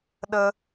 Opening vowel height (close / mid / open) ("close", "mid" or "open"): mid